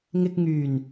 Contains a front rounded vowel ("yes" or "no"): yes